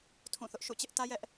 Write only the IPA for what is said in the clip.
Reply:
tʰũ˦˨θʊ˦ʔʃṵ˦˨ t͡ɕɪ˦ʔ tä˦jɛ˦ʔ

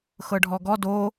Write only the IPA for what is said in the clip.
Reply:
xɤɖʱɔɡɔ do

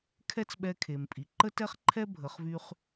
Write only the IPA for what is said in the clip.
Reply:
kʰɛ˦t͡sɓɛ˧kʰe˨mpʼi˨ ǃə˦tɛ˦χǃʰɛ˦ bʱə˨˦χvy˦χ

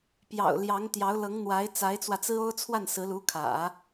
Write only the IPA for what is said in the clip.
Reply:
pjɑ̰˨˩ʊ̯ ljɑ˧˥ŋt̪jɑ˧˥ʊ̯lɤ˧˥ŋn̪wa˧˥ɪ̯ t͡sa˧˥ɪ̯t͡swä˧t͡sɹ̩˥ o˥ʊ̯t͡sʰwa˥˩nsɹ̩˧˥ lu˧˥kʰä̰˨˩˦

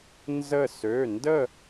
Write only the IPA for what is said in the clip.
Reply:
nzə˧˩sø˩˧˩ ndə˥˨

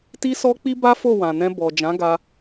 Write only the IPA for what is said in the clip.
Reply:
ti˦sɔ˦k͡pi˦ ba˦fo˦˨ wã˨nɛ̃˧ bɔ˨ d͡ʒã˨˦ɡa˧

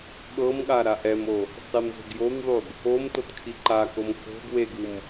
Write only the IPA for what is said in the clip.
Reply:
ɠɤmɠa ɾaʔɛmo | sˤimzo̤ɡjomðˤuɡ | omtɤt kʰiǃakom ko̤ɡ weɡɯm

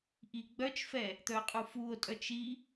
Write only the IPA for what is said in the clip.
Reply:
ʔiɡ͡bœt͡ʃfɛ | t̪œqʼufuo̯tʼœt͡ʃ i

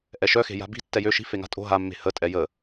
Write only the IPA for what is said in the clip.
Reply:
ʔɛʃœxe̤ ja̤bi̤ tːɛjø ʃi̤ feŋa̤tʼo̤ ɦamːe̤ hətʼɛ jə

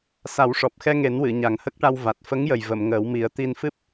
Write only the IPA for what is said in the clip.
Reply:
sa˨˩˦wʂɔ˨˩p̚xɛ˧ŋe˨˩˦n wɨ˨˩˨ɲa˨˩ŋhə˦˥k̚ʈa˧w va˨˩t̚fə˧˥ŋjə˨˩j və˨˩˨mŋəː˨˩˦wmi˨˩˦ə̯t̪i˧n fɨ˦˥p̚

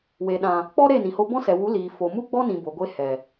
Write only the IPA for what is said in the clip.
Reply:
we˨ɗã˨ | k͡pɔ˦ ɾe˦˨nĩ˨ho˧ bɔ̃˦sɛ˨ wu˨˦liː˨ fo˨mu˦ɡ͡bɔ˦nĩ˨ bo˨ɡʷe˧ hɛ˨

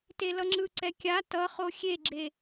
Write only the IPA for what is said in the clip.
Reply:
telʌŋ͡ǁɯǀɛ kʲa tʌχo xʲeɡ͡ǁe

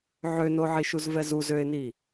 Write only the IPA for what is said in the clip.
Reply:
ʕønoʕiʃuz vɛzuz øɪ̯ni

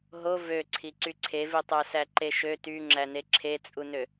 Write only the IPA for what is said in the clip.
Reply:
ɦo vøǀʰi ǀyǀʰevitˤæ sæǃeʃø tyŋ͡ǁæne ǁʰet͡sʼunø

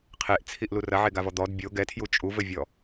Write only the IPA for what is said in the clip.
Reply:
qʰeʔt͡sʰiʔlu rɐʕeɡavɔ d̪ɔd bʲo ɡɛtʰju t͡ʃʼuvɘvʲɔ

